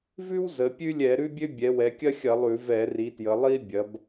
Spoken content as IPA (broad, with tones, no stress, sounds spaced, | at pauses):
v ʉ˥ w z ə˩˧ pʲ ʉ˥ lʲ ɛ˧˩˧ ɾ ʉ˥ bʲ ø˥ bʲ ɛ˩˧ w ɛ˩˧ kʲ ɐ˥ xʲ ɐ˧˩˧ lˠ ʉ˧˩˧ v ɛ˧˩˧ r i˩˧ t j ə˩˧ lˠ i˥ bʲ ɐ˩˧ b